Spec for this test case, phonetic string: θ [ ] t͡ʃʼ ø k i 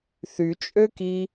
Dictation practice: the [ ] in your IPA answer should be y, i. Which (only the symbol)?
y